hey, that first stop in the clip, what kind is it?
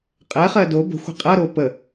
ejective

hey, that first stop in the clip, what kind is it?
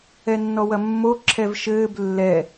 click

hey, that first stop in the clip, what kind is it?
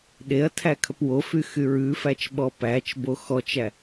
implosive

